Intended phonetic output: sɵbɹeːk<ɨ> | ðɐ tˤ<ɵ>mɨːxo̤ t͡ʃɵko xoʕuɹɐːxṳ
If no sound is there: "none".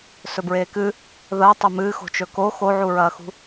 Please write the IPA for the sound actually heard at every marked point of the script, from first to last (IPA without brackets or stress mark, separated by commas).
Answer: ɨ, ɵ